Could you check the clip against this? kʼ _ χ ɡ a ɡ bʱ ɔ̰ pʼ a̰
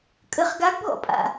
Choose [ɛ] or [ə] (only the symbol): ə